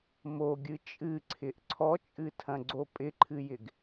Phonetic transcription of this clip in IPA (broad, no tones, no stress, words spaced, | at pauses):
moɡʲɨ t͡ʃʼɨǀʰɪʔ ǀʰɔt͡ʃʼɨtʰɐ̃ɡ͡ǀo pʼɪǃʰɨjɪɡ